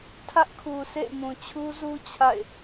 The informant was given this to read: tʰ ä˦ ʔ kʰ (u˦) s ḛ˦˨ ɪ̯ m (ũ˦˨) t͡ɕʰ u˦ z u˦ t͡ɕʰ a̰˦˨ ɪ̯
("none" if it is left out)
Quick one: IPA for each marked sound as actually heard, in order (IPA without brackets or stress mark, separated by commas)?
u˨, ũ˨